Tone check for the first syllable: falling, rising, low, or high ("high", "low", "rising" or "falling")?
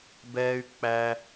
high